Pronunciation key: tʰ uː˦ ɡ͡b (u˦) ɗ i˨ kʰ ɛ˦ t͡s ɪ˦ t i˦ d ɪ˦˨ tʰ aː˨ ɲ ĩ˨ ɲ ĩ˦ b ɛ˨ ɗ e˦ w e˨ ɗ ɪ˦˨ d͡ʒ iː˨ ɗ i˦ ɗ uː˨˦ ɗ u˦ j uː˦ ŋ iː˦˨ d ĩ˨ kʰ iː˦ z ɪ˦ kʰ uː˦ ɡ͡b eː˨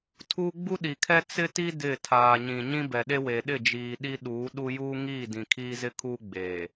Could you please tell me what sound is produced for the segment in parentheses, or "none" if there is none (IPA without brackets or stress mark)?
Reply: u˦